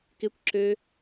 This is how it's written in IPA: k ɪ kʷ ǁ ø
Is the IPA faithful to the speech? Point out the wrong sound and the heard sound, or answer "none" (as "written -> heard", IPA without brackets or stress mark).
none